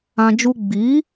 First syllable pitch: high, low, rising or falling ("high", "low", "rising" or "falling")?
high